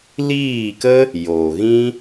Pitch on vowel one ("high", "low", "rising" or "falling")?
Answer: falling